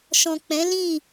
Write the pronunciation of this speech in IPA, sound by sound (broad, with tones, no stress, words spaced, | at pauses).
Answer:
ʃɔ̃˨k͡pɛ̃˨˦ lĩ˦˨